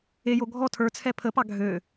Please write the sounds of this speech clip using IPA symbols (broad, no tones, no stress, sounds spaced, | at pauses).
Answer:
e j o ɡʱ ɔ tʰ ə˞ t͡sʰ ɛ pʰ ə p ɑ ɡʱ ø